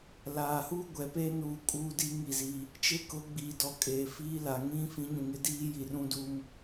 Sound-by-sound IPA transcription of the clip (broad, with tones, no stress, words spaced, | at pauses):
laː˨hu˦ ɡʷɛ˨peː˦nuː˨ kʼuː˦di˦ ŋi˦˨ziː˦ | t͡ʃɪ˦kʊ˨˦ɡ͡biː˨dɔ˨ kʼeː˨fiː˦la˨ ŋĩ˦ fĩ˨˦ɲũ˨ŋɪ˦diː˦ ji˨rũ˦duː˦m